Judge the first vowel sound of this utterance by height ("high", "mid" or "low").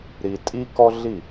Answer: high